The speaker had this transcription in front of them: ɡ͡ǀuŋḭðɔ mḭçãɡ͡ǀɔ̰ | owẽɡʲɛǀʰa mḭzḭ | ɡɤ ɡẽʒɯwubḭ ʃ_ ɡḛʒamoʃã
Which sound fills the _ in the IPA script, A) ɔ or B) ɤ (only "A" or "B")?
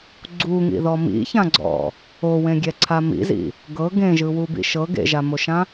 B